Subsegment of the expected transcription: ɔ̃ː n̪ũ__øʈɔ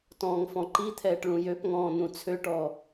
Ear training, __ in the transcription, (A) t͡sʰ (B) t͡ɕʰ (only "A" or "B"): A